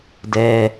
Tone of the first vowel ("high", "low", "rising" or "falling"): low